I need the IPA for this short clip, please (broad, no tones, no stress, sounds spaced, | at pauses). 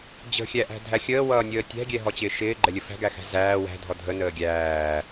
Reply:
d͡ʑ ə̤ xʲ æ ʔ æ̤ dʱ æ xʲ əː w ʌː nʲ əː tʲ æ̤ ɡʲ ɛ ɦ ɔ t͡ɕ ɪː ʃ ɪː ɡ͡ǃ ɛ lʲ ə f æ̤ ɡ æ x æ̤ z æː w æ̤ dʱ ɔ dʱ ə n əː ɡʲ æː